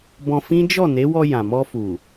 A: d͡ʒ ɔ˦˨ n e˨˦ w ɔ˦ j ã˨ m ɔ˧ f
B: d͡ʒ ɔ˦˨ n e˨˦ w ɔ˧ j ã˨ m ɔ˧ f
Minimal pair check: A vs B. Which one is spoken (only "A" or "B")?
B